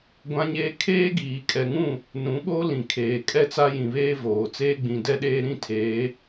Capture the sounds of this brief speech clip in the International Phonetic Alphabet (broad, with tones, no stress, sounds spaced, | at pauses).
ɡʷ ã˦ ɲ eː˦ kʰ eː˦ ɡ iː˨ kʼ ɛ˨ ŋ ũ˦˨ | n ũ˨˦ ɓ o˦ l ĩ˨ kʰ eː˨ kʼ ɛ˦ t͡s a˦ j ĩ˨ β eː˦ v oː˨ t͡s eː˦ ɡ͡b ĩ˨ d ɛ˦ ɗ eː˦ ɾ ĩ˦ tʰ eː˨˦